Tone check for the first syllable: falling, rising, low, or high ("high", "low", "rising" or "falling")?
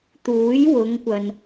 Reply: rising